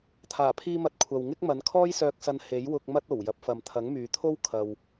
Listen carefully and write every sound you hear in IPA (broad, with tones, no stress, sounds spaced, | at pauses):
t̪ʰ aː˨˩ pʰ iː˧ m ɐ˨˥ t̚ kʷʰ ɐ˨ w ŋ ɪ˥ k̚ m ɐ˨˥ n kʰ ɔː˥ j s œː˧ k̚ s ɐ˧ n h e˨˥ j w ʊ˧ k̚ m ɐ˥ t̚ o˨˩ w j ɐ˨˥ p̚ f ɐ˨ m t̪ʰ ɐ˨˥ ŋ m yː˨ t̪ʰ o˥ w kʰ ɐ˧ w